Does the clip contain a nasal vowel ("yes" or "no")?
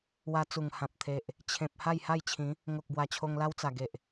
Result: yes